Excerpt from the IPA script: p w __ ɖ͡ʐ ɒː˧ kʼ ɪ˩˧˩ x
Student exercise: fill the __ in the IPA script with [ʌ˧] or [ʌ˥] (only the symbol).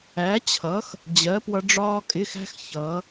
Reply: ʌ˧